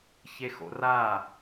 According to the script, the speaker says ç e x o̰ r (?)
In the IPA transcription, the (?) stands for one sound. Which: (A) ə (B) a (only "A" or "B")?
B